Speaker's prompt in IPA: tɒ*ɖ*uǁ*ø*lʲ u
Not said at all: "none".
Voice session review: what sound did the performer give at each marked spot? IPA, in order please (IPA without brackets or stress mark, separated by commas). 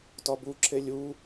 b, e